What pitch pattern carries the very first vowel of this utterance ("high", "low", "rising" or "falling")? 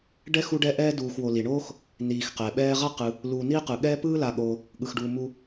high